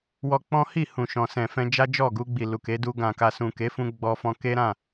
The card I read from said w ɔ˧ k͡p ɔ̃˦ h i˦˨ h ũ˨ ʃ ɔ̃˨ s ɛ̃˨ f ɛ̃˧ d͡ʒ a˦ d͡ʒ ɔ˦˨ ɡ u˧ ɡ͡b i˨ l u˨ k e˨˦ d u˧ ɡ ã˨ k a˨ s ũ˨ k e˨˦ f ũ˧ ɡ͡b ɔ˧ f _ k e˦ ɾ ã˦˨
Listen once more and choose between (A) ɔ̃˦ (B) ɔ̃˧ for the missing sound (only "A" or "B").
B